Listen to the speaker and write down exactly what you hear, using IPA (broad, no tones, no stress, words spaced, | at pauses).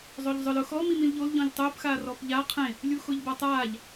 zˤoʎzˤʊl ʊ xɔ mimĩlʎol ʎɔ̃ʎtˤʊːp xaːrɔpʎa qʰẽ | lʲuxʊːʎbatˤaːʎ